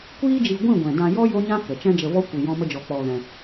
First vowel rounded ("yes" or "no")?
no